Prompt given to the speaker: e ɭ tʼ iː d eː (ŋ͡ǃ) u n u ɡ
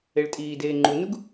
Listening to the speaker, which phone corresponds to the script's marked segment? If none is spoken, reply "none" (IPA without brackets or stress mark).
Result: ŋ͡ǃ